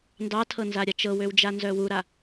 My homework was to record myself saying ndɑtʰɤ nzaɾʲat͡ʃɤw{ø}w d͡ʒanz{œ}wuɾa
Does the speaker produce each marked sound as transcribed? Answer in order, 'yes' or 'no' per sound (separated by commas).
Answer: yes, yes